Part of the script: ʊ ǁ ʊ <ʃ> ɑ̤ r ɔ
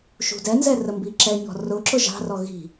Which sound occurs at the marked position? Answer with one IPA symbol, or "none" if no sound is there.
ʒ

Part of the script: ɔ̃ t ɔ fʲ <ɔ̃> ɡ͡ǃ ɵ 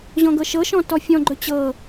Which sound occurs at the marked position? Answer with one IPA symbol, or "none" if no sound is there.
ɔ̃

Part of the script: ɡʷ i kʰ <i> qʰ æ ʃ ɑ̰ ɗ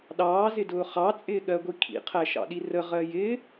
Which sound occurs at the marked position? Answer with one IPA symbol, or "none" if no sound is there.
ḭ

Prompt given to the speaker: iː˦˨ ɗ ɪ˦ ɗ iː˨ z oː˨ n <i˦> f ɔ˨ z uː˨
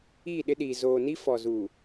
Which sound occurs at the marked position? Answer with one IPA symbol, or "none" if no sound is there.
i˦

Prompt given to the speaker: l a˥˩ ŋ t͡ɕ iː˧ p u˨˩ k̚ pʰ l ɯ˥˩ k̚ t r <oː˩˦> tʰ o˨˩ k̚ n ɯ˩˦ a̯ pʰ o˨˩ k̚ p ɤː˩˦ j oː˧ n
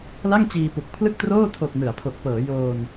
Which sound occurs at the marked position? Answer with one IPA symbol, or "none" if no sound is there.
oː˥˩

